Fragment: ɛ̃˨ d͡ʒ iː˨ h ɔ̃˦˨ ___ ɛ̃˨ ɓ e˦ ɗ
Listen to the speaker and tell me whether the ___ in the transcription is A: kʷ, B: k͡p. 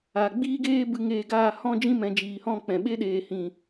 B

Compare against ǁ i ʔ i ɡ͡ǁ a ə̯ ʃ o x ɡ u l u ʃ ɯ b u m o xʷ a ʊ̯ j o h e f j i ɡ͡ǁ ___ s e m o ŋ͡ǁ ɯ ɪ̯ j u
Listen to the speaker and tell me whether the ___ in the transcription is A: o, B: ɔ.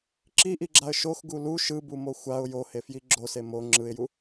A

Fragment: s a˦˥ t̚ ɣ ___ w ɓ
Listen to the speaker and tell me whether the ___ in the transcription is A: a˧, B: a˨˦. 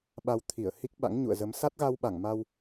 A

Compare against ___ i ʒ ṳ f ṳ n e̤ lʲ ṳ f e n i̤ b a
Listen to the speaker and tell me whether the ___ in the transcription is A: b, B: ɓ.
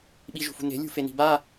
B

